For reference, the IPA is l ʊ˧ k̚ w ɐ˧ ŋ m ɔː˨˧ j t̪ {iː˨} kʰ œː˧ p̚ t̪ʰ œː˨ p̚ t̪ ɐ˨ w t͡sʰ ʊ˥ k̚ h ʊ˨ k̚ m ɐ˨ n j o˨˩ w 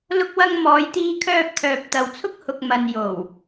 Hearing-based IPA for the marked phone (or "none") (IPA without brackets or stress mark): iː˧